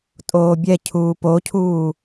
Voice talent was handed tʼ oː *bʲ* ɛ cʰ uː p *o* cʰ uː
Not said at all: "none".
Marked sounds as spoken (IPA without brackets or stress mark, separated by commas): bʲ, o